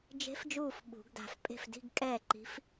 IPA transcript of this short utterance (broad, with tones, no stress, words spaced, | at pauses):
d͡ʒe̤˨˥fd͡ʒuː˧˩f ɓṳ˨˩˦ɡda̤˧˩f pʼe̤˥˩fdi̤˥˧ɡ kʼɛː˥˩ǃi̤˨˥f